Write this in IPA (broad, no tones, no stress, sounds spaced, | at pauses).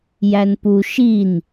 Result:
j æ n p u ʃ i n